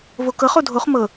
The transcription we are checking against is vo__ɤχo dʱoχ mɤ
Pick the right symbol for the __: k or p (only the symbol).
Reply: k